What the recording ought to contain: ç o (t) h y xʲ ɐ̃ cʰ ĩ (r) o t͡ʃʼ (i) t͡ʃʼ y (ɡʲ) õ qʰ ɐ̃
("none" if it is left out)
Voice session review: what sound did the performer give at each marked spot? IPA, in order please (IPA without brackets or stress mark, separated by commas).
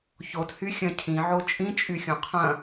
t, ʕ, ĩ, xʲ